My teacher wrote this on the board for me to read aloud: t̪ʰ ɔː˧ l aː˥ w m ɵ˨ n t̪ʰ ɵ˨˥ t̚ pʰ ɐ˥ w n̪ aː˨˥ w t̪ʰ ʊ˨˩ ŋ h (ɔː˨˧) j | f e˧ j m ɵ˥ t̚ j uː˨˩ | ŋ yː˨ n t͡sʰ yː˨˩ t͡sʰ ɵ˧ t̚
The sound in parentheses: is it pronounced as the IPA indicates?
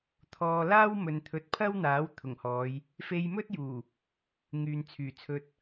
yes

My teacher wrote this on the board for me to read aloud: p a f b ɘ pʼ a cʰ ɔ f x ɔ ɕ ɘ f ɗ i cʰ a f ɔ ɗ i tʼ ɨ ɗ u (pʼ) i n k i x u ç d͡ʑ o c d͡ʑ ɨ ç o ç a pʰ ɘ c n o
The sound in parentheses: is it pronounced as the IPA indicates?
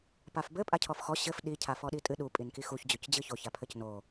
yes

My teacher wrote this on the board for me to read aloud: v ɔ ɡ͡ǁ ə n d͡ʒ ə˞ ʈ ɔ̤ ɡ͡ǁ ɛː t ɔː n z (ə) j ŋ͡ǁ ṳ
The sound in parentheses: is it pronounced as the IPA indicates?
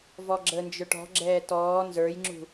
no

